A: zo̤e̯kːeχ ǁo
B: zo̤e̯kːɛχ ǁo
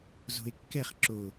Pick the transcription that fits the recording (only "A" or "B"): B